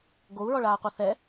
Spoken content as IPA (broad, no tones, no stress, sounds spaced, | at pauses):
ɡ o u̯ ɹ ɔ ɭ aː qʷ a θ ɛ